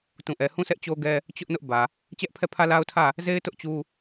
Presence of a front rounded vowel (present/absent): absent